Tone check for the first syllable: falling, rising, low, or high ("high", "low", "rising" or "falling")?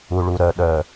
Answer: low